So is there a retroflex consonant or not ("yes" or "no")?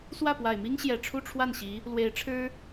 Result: yes